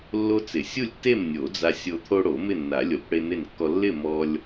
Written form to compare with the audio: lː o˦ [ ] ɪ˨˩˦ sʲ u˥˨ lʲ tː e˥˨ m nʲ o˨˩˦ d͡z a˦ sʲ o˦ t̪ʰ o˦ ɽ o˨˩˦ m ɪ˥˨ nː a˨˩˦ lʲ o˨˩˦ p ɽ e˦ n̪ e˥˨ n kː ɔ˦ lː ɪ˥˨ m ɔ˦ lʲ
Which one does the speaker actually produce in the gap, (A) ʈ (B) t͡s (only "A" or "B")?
B